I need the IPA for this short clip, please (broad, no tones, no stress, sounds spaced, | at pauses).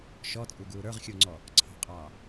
ʃ ɔ t͡sʼ u ɡ uː ɾ ə˞ ʁ xʲ u ŋ͡ǀ ɔ | ǀʰ ɑ̤ qʼ ɑː